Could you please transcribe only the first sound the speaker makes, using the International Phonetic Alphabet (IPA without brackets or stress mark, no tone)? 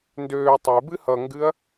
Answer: n